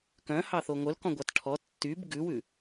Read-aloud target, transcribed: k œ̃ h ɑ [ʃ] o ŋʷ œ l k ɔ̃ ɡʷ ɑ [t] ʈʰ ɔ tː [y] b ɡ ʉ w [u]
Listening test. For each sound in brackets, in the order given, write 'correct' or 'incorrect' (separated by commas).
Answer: incorrect, correct, correct, incorrect